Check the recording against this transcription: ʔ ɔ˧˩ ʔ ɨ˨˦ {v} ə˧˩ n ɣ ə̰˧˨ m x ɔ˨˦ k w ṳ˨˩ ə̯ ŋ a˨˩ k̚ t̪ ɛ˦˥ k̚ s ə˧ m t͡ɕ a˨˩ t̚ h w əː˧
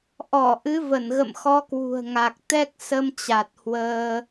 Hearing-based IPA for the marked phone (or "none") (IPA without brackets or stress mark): v